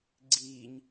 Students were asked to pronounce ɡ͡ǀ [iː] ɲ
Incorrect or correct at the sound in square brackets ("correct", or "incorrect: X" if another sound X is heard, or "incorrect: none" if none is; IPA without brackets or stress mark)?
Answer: correct